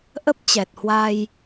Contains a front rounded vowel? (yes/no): no